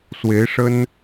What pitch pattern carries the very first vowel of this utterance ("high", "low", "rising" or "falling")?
rising